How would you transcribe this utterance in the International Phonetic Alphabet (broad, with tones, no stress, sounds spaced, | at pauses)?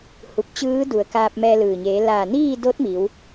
h u˧˩ p̚ t͡ɕ ɯː˧˥ d u˩˧ ə̯ k aː˧ p̚ m ɛː˧ l ɯː˩ ɲ eː˩˧ l aː˧˩ n iː˥˨ d o˧˥ t̚ m i˩˧ w